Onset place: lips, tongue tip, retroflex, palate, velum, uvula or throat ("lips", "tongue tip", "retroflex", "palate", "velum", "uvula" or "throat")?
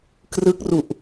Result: velum